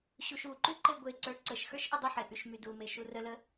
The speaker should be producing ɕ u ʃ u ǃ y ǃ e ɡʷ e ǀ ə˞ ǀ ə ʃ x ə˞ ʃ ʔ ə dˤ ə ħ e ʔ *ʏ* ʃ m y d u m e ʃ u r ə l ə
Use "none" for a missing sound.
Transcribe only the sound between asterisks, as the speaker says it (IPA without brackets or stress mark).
y